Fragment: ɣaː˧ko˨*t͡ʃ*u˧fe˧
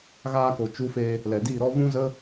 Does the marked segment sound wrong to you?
no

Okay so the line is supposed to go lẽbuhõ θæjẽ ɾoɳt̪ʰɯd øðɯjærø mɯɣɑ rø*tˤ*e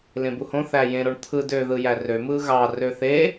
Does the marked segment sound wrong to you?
yes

